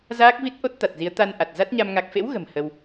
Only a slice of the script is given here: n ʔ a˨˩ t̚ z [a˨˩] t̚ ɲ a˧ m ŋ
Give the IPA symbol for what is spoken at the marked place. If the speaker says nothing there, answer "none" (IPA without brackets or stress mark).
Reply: a˦˥